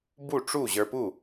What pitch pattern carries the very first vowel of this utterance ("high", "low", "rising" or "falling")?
falling